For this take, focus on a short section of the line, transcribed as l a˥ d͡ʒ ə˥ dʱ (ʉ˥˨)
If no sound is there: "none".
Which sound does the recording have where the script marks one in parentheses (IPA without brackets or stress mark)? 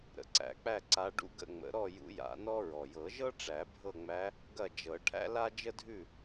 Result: ʉ˥˨